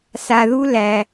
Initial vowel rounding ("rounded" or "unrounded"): unrounded